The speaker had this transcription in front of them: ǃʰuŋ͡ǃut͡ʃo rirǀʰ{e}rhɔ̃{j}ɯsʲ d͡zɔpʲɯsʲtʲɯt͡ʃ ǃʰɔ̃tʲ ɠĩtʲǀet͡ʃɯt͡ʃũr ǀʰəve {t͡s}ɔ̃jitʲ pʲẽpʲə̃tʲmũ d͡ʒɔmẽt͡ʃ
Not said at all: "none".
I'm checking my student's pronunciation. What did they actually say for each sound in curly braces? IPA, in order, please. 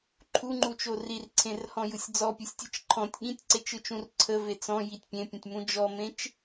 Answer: ẽ, j, t͡s

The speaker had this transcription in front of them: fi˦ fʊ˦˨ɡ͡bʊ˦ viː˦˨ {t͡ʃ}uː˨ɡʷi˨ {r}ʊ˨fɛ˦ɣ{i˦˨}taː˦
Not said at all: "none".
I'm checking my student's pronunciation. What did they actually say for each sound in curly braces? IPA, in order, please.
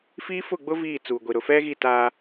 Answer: t͡s, ɾ, i˦˨

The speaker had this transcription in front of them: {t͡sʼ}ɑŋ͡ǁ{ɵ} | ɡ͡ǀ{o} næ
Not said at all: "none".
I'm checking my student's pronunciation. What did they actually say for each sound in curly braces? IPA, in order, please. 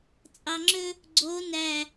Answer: t͡sʼ, ɵ, o

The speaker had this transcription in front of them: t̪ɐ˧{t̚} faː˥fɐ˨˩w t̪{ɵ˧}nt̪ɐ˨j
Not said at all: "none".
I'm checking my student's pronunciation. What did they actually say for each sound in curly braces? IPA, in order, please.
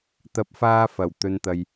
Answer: p̚, ɵ˨

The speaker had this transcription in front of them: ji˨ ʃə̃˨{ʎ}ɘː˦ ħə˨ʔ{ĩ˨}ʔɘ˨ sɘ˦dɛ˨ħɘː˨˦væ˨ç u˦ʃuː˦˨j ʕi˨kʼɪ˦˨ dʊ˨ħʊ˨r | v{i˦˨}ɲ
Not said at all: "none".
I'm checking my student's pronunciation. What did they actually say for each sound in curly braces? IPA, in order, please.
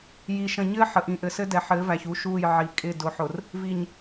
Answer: ɲ, ĩ˨, i˨

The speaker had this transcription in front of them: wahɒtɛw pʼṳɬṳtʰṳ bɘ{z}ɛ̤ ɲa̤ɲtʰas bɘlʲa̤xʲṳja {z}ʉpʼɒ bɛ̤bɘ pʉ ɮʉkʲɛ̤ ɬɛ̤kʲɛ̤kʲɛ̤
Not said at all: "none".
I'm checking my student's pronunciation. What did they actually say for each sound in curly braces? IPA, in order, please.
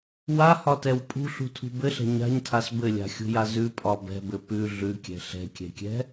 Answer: ɬ, z

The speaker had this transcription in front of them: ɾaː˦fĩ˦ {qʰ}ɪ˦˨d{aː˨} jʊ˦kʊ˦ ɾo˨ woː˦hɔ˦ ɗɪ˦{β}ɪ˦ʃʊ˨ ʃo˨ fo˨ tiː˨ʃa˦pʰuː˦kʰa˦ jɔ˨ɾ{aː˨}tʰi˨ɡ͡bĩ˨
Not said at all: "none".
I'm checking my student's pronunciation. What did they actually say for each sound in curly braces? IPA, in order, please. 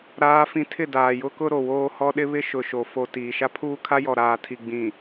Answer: tʰ, aː˨, β, aː˨

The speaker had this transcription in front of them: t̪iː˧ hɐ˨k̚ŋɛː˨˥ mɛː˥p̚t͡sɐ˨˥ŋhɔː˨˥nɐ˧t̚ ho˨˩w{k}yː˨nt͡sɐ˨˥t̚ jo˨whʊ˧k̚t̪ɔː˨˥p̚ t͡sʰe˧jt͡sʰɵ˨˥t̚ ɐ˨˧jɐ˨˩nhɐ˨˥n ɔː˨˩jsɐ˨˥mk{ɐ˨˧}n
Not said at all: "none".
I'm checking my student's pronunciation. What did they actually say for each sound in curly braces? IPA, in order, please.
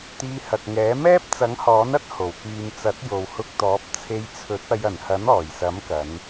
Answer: k, ɐ˨˧

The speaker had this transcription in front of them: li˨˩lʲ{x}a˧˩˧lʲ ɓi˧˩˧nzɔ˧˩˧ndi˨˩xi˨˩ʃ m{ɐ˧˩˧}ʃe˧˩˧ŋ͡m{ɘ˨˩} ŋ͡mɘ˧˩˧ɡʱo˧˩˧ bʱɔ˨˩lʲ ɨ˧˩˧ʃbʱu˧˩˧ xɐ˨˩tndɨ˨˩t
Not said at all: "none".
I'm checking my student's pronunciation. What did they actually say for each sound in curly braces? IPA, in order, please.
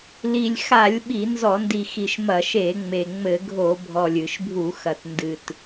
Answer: x, ɐ˧˩˧, e˨˩

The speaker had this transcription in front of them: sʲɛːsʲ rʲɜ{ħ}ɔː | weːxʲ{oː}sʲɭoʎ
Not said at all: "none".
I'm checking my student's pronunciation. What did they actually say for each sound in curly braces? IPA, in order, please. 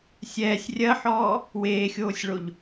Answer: ħ, oː

